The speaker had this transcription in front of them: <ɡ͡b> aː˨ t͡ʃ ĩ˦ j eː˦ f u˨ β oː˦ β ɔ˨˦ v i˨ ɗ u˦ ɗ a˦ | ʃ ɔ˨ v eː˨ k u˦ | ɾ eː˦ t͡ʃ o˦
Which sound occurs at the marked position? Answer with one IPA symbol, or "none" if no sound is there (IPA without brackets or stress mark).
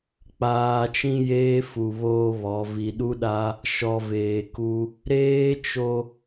k͡p